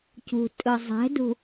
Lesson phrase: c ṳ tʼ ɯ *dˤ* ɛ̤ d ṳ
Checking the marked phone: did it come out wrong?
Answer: yes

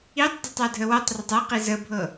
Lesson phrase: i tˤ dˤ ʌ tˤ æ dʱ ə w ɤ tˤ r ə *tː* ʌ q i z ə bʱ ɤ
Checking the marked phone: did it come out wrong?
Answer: yes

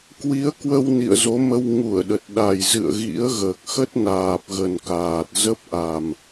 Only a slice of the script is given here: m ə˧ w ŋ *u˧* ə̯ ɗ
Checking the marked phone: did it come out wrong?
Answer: yes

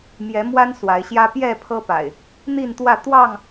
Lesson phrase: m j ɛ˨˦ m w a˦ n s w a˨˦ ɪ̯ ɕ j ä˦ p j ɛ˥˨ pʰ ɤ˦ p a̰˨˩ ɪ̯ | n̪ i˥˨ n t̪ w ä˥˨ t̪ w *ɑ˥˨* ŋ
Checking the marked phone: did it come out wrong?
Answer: no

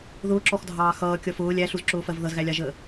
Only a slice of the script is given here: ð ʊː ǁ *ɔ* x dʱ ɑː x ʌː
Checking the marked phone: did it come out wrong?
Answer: no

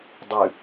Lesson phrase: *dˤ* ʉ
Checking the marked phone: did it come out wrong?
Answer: no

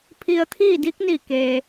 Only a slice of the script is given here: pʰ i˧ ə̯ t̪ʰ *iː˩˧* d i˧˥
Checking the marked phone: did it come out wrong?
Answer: yes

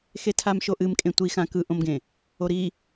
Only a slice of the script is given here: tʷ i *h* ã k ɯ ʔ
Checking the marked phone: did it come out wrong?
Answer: yes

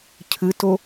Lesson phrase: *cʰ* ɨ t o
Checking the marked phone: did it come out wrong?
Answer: no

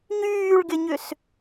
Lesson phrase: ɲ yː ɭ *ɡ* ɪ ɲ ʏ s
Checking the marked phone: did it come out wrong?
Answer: no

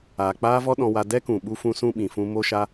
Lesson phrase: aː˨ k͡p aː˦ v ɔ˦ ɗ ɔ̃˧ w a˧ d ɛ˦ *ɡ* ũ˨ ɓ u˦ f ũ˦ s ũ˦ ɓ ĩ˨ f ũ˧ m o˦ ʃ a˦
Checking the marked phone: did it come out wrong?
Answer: yes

